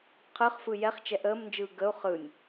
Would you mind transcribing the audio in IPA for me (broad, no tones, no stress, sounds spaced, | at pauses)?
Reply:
qʰ ɯ χ f ɯ j ɛ χ t͡ʃ ɛ ʔ əː m n d͡ʒ ɯː ɡ ə u̯ χ ɯ nʲ